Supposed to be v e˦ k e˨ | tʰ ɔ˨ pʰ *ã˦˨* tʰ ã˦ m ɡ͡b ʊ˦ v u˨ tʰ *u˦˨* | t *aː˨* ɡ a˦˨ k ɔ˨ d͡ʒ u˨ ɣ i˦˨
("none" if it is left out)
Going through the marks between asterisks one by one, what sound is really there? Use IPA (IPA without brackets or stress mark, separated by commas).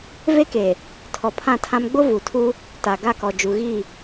ã˦˨, u˦, a˨